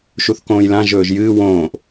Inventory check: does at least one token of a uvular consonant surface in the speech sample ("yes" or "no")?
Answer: no